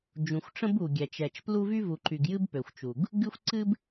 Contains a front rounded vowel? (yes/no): yes